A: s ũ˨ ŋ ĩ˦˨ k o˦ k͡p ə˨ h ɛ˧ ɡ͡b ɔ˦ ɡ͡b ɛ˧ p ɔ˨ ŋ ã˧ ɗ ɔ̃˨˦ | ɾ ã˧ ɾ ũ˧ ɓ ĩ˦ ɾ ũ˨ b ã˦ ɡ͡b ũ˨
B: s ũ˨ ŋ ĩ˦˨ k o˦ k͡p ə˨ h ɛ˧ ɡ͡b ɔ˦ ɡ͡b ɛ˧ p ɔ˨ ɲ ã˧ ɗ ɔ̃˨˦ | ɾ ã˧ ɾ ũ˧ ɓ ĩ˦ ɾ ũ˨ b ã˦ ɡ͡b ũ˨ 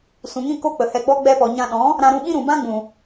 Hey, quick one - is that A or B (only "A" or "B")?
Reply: B